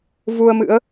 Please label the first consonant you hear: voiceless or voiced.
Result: voiced